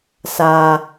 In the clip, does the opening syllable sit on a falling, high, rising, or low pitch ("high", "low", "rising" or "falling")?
low